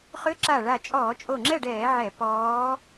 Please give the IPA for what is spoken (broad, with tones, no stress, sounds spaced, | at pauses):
χ ʏ˧˥ ǁ a˧˩ ɭ a˧˩ t͡ʃʼ ɔː˧˩˧ t͡ʃʼ o˧˩ ŋ͡ǁ ɛ˥˨ ɖ ɛː˧˩˧ ʕ ɛ˧˩˧ p ɔː˧˥